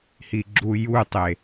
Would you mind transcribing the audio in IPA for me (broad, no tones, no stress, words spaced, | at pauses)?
hiɡ͡ǁujutˤe